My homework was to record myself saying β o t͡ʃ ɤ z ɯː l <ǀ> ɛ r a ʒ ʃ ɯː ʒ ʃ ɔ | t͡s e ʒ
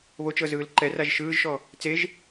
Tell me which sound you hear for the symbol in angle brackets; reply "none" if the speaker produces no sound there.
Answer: ǃ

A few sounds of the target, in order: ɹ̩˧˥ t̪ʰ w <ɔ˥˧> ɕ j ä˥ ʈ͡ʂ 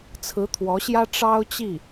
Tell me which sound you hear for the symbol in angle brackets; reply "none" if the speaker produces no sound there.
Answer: ɔ˧˥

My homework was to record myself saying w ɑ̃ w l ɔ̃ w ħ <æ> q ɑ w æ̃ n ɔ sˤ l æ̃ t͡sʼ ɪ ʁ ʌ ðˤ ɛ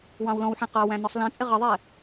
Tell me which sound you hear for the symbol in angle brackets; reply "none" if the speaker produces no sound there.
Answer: æ̃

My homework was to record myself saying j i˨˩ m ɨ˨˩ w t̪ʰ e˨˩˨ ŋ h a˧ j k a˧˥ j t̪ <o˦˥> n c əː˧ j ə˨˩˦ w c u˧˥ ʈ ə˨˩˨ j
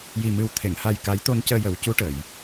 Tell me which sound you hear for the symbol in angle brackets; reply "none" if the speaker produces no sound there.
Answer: o˧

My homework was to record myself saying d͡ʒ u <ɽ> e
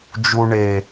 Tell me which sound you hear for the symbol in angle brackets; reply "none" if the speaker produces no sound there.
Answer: ɳ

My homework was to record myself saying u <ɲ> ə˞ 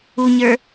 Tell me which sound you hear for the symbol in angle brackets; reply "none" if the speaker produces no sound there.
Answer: ɲ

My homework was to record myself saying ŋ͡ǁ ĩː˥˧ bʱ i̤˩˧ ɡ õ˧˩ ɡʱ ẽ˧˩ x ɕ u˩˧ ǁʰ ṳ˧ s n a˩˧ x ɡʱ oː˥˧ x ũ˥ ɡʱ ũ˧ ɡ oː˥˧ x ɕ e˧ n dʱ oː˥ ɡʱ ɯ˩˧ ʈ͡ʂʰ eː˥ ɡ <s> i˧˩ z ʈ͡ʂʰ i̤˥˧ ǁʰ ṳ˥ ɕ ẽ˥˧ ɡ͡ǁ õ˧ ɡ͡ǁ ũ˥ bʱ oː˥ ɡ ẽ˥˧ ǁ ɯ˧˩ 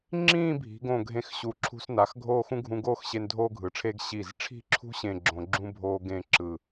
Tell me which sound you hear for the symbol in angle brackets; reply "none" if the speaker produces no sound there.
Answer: ɕ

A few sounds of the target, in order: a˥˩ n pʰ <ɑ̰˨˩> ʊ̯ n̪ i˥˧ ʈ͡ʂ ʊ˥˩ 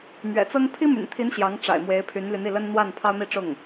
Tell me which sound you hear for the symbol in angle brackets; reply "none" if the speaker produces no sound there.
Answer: ɑ˥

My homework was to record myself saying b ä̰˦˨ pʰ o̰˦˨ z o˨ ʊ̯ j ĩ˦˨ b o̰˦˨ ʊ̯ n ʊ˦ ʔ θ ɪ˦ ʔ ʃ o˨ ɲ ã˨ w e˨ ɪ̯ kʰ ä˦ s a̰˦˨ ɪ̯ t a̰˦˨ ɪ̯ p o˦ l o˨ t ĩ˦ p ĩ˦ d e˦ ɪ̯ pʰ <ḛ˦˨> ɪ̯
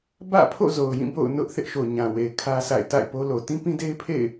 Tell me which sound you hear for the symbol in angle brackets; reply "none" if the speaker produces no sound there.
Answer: ḛ˦˨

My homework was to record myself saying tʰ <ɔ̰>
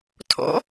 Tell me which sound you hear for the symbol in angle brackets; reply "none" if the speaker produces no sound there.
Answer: ɔ̰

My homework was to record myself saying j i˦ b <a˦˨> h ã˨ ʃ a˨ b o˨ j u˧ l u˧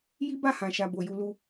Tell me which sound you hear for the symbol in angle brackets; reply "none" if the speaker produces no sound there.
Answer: a˦˨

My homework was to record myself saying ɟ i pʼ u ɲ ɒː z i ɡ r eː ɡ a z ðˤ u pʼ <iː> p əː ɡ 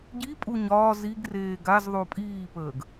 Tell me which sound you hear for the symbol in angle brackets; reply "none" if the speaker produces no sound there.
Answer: iː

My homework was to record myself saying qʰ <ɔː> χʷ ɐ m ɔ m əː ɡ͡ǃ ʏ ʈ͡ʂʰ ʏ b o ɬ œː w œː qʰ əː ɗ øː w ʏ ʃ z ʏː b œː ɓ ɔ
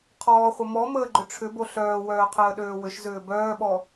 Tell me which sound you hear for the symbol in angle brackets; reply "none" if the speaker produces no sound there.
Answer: ɔː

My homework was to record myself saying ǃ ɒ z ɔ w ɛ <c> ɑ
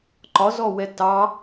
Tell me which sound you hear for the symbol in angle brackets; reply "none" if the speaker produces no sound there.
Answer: t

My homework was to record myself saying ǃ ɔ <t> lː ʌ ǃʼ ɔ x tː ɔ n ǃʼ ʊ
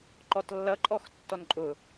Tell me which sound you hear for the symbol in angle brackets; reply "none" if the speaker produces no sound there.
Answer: t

